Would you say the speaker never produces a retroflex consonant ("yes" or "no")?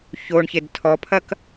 no